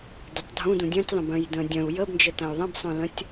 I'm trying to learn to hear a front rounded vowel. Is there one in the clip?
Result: yes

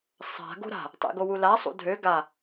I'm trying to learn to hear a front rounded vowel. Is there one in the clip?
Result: yes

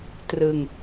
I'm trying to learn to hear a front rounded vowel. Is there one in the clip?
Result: no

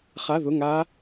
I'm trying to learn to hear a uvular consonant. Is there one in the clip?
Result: yes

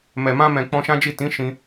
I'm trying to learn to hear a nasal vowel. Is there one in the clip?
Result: yes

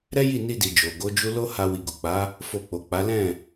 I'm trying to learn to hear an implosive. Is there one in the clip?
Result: no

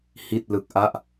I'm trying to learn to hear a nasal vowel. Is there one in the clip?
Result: no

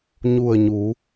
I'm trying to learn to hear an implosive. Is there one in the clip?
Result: no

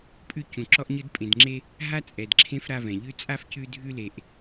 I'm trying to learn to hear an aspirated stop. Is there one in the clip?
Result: yes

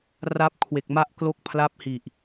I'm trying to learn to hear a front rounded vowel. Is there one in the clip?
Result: no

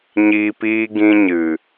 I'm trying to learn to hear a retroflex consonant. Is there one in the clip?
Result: no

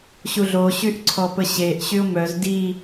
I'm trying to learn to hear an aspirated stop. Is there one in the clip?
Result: yes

